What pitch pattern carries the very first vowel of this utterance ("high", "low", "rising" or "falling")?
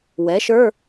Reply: rising